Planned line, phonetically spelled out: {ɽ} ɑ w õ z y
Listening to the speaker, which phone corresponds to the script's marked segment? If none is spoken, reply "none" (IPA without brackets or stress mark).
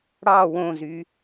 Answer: ɽ